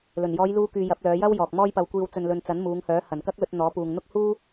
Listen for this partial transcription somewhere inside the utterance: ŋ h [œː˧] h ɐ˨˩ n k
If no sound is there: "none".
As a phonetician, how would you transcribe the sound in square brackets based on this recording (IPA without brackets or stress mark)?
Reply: œː˨˥